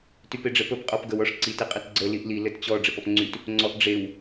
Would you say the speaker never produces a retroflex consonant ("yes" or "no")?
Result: no